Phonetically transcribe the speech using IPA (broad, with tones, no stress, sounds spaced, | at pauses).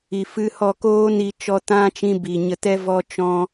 i˨ f ɨ˧ h ɔ˦˨ k oː˦ n i˧ t͡ʃ ɔ˧ t ã˦ t͡ʃ ĩ˧ b i˨ ɲ ə˧ t ɛ˦ v ɔ˦ t͡ʃ ɔ̃˦